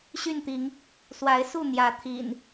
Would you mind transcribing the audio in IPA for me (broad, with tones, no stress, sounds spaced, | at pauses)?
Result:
ɕ y˥˨ n t̪ i˨˦ ŋ | s w a˨˦ ɪ̯ s u˥˨ n̪ j ä˨˦ t̪ʰ ḭ˨˩ n